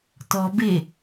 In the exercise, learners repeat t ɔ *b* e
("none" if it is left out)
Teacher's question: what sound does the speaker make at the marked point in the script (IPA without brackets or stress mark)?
b